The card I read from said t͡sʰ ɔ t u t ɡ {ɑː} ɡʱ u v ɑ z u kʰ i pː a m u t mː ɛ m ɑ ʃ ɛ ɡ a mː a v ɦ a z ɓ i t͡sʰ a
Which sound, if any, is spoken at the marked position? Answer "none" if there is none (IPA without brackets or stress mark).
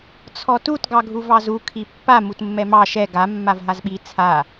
ɑ